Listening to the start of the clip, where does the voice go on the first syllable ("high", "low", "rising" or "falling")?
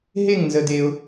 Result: falling